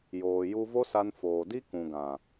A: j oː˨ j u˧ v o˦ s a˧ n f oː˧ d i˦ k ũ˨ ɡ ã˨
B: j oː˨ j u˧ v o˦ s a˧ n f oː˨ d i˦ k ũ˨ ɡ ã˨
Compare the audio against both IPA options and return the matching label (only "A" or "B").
B